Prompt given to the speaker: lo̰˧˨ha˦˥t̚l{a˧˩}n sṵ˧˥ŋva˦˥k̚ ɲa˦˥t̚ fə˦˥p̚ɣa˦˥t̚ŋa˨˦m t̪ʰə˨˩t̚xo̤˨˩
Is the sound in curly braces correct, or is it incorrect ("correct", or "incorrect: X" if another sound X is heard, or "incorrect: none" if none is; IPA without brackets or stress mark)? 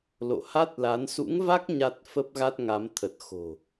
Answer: incorrect: a˨˦